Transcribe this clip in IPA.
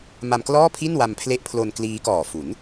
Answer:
m a˧ m k l ɔː˥˩ pʰ i˥˩ n w a˧ m pʰ l e˦˥ ʔ pʰ l o˧ n k l iː˦˥ k ɔː˨˩ f u˩˦ n

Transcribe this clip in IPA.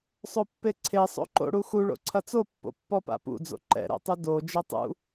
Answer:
sˤ o pː e ǀʰ e sˤ o̰ ǃ o̰ ɽ u x u ɭ o̰ ǀʰ ɐ t͡s o pː o̰ pː ɔ p a̰ p ṵ d͡z o̰ ǃ ɛ̰ ɾ ɛ̰ tˤ ɨ d o d͡ʒ ɛ tˤ ṵ

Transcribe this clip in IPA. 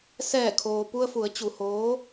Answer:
s ɛː˧˩ kʰ oː˩ p u˧ ə̯ f u˩˧ ə̯ t͡ɕ u˩ h oː˧˥

